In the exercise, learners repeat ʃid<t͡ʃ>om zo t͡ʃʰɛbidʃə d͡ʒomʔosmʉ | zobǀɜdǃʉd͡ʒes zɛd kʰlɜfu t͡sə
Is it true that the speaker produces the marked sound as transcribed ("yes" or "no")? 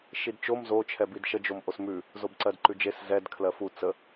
yes